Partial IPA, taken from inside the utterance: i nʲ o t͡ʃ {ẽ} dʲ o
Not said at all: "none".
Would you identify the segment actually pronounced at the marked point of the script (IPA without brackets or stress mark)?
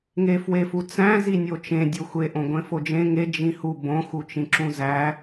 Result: ẽ